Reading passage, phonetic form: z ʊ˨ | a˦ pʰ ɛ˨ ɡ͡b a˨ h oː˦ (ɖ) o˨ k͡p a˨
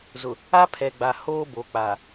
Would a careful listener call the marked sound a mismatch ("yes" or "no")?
yes